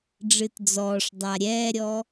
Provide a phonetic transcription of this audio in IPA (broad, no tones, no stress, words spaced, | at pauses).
ɖ͡ʐɨtd͡zɔːʂdˤa ɾʲɛːɾʲɔ